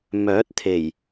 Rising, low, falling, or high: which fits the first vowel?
rising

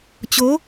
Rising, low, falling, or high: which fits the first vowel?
rising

